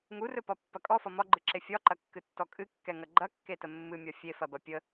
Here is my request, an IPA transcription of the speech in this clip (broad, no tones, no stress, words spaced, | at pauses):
ŋurɵpɒpːɐ kʼɔfɒ mɒɡ͡ǃɨǁe fʲɒǃɐkːɨtːɔ kʼɨkːɛŋɐ ɡ͡ǃɐkːetə mːɨmʲɒ fʲefɐbɐ pʲə